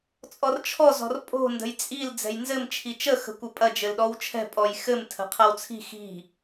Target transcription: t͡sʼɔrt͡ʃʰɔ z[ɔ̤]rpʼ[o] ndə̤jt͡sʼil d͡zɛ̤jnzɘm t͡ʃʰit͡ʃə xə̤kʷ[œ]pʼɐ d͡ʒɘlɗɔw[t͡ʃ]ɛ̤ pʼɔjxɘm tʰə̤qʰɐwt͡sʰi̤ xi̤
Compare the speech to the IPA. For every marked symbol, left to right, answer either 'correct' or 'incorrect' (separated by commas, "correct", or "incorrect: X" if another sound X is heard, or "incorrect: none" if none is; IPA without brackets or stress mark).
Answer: correct, incorrect: o̤, incorrect: ə, incorrect: t͡ʃʰ